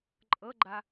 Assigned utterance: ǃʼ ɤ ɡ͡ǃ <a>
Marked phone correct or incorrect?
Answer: correct